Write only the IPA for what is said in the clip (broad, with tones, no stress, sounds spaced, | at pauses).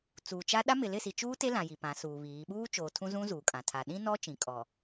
t͡s uː˨ t͡ʃ a˦ ɗ a˦ m ɪ˨ l ɪ˦˨ s i˨ t͡ʃ uː˦ t e˦ l ã˨ j i˨ p ã˨˦ s uː˨ β iː˨˦ ɓ uː˦ t͡ʃ oː˨ tʰ ũ˦ z ũ˦ z uː˨ kʼ ã˨ tʰ a˨ ɗ ĩ˦ n ɔ˦ t͡ʃ ĩ˨˦ kʼ ɔ˨